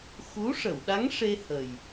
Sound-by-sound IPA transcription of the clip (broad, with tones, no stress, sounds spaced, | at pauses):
x u˧˥ ʂ ə˨˩˨ w ɗ a˧˥ ŋ ʂ e˧ h ə˨˩ j